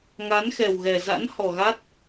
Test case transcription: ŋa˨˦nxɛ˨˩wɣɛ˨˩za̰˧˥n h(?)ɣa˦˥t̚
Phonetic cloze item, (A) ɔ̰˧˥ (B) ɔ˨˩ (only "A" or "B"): B